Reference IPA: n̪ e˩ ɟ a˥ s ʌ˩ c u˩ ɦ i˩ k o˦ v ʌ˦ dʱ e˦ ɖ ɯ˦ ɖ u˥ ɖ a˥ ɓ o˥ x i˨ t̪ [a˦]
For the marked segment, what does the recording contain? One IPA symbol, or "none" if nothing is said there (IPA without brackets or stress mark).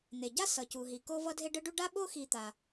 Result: a˩